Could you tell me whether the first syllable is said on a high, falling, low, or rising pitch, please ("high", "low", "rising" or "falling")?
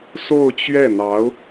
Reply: falling